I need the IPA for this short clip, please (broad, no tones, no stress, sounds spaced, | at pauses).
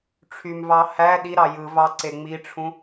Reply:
ʈ͡ʂʰ y m v ɑ h æ ɗ i ɾ ɑ j ɯ v ɑ ǀ e ŋ͡m i ʈ͡ʂʰ ũ